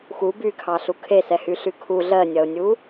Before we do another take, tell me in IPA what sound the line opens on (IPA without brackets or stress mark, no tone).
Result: x